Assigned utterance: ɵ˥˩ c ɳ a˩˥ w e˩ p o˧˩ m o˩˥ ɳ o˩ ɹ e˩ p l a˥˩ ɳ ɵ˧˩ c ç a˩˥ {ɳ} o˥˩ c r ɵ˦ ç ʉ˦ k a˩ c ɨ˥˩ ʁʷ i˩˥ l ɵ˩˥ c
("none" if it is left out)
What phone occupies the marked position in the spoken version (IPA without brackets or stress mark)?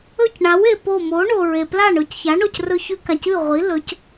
ɳ